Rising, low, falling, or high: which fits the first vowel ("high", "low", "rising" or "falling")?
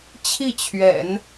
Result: falling